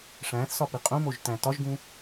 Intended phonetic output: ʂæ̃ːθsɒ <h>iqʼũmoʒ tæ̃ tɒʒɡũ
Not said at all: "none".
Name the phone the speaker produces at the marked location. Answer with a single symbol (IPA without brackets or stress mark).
p